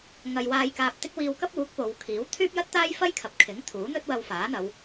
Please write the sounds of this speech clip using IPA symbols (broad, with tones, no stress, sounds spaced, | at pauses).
ŋ ɐ˨ j w aː˨ j k aː˨ p̚ t̪ ɪ˧ k̚ w iː˧ w k ɐ˥ p̚ uː˨˥ k̚ p o˨˧ w kʰ iː˨˥ w t̪ʰ yː˥ p̚ j ɐ˥ t̚ t̪ aː˥ j f ɐ˥ j kʰ ɐ˨˥ p̚ kʰ ɪ˨˥ ŋ t̪ʰ uː˨˥ n̪ ɵ˥ t̚ w ɐ˧ w f aː˨˥ n̪ ɐ˨˧ w